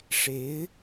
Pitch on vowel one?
rising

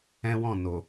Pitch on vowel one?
high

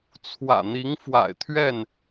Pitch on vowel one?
low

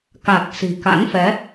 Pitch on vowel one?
low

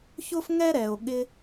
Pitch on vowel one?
high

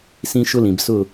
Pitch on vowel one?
high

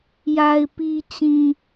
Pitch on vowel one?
low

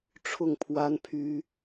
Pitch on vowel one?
falling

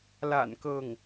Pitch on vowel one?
low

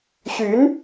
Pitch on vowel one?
rising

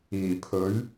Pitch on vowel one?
low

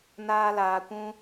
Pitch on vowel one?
high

